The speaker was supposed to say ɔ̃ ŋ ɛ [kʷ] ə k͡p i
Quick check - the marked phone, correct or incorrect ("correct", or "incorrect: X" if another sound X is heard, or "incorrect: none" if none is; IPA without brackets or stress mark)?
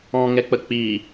incorrect: k͡p